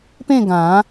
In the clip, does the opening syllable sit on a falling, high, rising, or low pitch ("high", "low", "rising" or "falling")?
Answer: falling